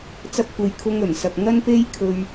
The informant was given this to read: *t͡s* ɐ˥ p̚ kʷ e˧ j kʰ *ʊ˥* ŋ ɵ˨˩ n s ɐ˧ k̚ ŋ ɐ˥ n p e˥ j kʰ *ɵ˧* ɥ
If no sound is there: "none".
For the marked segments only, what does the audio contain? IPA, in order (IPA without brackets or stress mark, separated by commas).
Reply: t͡s, ʊ˥, ɵ˧